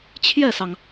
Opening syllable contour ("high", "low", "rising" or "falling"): falling